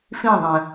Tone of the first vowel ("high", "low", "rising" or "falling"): falling